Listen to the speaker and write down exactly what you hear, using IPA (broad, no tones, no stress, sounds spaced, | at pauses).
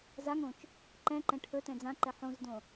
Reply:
z a ŋ õ t͡ʃ | ǃ ɛ̃ ǃ ɛ̃ ʈʰ ɵ t ɛ̃ d͡z ã ǃ ɛ ħ õ z d õ